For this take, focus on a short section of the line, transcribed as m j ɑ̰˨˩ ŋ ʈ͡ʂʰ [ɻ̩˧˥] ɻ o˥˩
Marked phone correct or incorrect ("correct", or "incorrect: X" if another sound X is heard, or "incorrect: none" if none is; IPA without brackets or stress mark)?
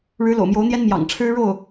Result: incorrect: ɻ̩˥